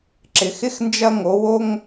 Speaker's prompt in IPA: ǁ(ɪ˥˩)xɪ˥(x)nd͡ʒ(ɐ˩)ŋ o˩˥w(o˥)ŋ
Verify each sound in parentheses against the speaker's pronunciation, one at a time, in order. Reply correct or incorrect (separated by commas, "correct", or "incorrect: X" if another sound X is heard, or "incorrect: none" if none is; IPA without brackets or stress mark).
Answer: incorrect: ɪ˩, correct, incorrect: ɐ˥˩, correct